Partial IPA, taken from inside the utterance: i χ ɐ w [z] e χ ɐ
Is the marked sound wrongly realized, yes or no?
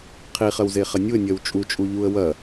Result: no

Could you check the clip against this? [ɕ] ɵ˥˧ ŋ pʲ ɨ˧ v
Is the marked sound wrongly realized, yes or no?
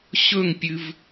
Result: no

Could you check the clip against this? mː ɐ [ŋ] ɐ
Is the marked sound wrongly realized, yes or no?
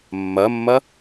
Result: yes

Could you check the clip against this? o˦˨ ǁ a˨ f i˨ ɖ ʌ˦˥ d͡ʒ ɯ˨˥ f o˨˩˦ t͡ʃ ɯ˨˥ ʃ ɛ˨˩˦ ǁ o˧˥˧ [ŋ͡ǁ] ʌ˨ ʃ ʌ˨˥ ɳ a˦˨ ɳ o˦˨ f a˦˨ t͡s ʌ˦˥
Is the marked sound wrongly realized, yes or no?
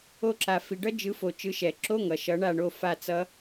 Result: yes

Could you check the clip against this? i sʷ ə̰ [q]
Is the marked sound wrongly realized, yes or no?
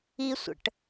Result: yes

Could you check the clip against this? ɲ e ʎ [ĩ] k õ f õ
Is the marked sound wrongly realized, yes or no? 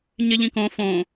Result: no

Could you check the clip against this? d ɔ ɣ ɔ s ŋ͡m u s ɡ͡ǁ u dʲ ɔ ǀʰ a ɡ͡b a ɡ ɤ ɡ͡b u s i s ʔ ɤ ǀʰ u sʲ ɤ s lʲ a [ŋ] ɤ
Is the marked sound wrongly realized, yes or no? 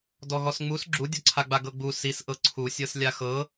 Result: yes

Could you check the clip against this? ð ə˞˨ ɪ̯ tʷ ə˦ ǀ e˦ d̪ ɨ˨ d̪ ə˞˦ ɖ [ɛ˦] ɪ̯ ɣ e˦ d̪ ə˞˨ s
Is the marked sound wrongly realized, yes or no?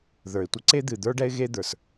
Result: no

